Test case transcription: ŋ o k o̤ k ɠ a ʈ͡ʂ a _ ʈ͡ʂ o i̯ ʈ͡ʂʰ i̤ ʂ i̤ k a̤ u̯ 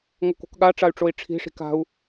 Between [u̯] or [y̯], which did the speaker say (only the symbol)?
y̯